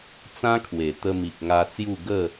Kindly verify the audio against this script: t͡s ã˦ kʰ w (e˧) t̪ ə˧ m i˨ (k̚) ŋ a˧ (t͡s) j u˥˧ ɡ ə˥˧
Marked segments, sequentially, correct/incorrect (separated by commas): incorrect, correct, correct